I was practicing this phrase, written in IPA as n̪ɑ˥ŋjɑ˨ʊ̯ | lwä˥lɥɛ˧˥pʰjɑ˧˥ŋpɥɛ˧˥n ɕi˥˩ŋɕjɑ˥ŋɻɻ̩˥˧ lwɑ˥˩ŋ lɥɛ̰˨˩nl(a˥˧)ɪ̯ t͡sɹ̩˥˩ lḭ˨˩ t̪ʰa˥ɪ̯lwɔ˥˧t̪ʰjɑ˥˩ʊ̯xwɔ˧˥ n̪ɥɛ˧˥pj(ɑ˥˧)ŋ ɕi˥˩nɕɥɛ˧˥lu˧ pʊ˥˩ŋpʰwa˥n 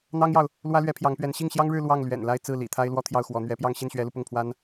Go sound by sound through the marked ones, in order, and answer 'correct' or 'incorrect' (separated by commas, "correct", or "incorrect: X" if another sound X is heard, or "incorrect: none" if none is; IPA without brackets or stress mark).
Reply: correct, correct